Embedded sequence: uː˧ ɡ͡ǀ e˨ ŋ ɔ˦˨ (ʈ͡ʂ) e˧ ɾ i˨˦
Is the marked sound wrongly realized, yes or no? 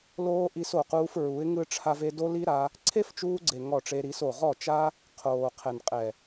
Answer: no